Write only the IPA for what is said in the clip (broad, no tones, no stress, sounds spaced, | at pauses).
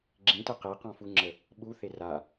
ɡ͡ǁ ĩ t ə q e q ɔ̃ f u ŋ͡ǁ ə | ɓ u θ e r a